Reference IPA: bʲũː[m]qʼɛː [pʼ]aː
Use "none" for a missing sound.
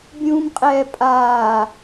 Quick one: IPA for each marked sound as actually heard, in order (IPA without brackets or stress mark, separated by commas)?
m, pʼ